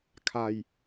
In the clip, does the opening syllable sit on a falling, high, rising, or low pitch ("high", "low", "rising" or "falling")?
low